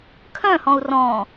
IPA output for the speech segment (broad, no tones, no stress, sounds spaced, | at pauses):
kʰ œ̃ h ɔ̃ u̯ r ɔ̃